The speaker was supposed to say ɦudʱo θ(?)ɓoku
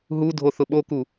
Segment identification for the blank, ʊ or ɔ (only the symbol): ʊ